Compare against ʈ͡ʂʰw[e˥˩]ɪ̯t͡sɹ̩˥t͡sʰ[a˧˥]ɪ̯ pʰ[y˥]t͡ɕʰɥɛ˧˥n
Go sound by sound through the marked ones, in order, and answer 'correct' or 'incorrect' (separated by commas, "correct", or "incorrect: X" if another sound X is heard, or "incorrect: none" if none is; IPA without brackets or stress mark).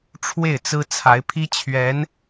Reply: correct, correct, incorrect: i˥